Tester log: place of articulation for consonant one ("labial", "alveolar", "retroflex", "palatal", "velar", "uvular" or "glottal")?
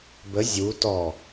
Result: labial